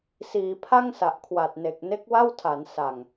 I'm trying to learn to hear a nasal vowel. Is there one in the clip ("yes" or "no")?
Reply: no